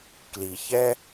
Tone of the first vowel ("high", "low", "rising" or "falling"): low